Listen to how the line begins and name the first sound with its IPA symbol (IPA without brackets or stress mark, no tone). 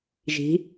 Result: ʒ